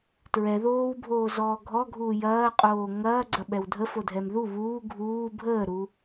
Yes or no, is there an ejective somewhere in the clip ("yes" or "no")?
yes